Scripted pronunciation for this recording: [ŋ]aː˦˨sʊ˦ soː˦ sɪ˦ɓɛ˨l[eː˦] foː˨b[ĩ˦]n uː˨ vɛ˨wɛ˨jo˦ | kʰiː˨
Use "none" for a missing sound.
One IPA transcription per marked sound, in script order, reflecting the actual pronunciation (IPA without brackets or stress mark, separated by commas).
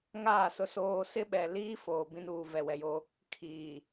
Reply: ŋ, iː˦, ĩ˦